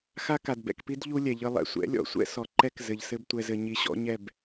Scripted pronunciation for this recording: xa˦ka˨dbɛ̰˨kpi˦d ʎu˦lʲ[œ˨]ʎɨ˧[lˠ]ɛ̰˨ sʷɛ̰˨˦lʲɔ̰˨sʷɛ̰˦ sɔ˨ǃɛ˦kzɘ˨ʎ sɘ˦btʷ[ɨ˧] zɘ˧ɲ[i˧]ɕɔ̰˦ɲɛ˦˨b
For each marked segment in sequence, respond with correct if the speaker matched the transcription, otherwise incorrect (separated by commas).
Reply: incorrect, correct, incorrect, correct